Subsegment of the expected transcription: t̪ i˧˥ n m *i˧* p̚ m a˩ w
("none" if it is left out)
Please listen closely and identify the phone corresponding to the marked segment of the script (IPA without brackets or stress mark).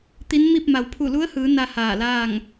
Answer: i˥˨